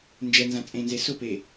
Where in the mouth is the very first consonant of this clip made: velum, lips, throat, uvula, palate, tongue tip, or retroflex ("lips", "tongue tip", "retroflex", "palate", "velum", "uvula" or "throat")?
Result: tongue tip